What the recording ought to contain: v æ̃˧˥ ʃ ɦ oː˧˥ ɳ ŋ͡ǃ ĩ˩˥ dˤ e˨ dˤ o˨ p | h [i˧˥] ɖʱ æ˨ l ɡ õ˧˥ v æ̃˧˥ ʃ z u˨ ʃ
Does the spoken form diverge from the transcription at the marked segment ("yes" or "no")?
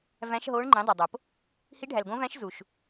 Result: no